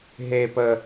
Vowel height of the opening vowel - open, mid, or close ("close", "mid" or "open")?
mid